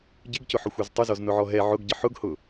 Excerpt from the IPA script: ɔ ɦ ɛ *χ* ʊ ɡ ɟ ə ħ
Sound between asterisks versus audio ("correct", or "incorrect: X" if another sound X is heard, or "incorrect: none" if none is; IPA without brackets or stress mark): incorrect: ʕ